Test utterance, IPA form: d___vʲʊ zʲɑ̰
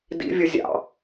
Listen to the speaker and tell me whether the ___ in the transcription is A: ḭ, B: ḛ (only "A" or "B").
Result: A